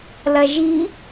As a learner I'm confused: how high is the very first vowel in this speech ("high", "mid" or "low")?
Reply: low